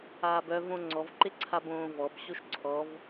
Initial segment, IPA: aː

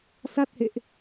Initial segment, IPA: s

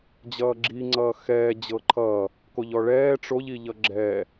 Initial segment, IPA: d͡ʑ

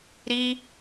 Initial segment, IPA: ɾ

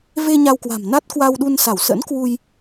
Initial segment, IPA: v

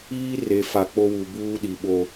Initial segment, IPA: iː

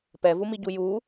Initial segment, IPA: p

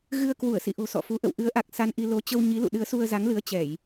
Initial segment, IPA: ɣ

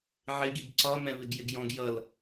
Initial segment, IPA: ʕ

